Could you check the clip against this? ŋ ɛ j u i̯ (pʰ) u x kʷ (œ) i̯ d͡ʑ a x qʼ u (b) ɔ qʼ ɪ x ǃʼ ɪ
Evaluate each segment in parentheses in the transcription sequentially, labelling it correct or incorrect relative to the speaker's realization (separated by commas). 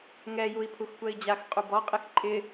correct, incorrect, correct